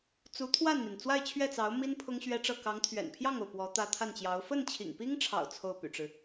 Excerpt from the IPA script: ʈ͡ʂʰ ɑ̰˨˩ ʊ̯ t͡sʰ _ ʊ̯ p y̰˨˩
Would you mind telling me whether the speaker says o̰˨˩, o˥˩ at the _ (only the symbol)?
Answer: o˥˩